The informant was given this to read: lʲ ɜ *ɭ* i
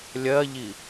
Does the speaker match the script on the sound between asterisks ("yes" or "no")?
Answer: no